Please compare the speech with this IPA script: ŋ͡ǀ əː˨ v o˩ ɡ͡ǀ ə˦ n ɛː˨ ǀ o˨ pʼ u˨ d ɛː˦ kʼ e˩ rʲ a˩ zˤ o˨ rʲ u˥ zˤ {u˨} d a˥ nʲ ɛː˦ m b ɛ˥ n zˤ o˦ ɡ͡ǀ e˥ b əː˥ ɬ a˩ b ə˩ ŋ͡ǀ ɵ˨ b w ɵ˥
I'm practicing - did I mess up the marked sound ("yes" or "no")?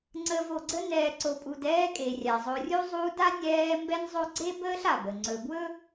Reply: yes